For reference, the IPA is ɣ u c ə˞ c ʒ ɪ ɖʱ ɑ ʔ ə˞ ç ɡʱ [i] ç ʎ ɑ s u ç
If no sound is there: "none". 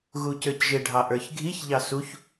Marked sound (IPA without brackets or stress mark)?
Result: i